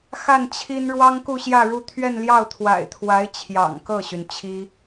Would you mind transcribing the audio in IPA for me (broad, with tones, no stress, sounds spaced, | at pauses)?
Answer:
x a˥˩ n t͡ɕʰ i˥ n ɻ w ɑ˥ ŋ k u˥˧ ɕ j ä˥˧ ɻ u˥˧ t̪ʰ ɥ ɛ˥˧ n l j ɑ˥˩ ʊ̯ t̪ʰ w a̰˨˩ ɪ̯ t̪ʰ w a˧˥ ɪ̯ t͡ɕʰ j ɑ̰˨˩ ŋ k ɤ˥˩ ɕ y˩ n t͡ɕʰ i˥